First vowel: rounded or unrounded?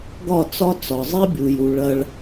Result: rounded